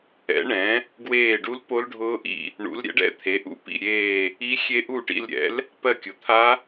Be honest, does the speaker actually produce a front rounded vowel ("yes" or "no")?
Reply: no